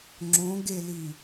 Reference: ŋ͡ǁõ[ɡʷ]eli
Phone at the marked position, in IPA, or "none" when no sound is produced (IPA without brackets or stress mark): ɡ